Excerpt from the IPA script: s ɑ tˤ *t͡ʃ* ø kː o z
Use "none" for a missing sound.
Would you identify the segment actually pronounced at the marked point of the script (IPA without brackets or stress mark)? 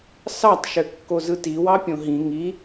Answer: ʃ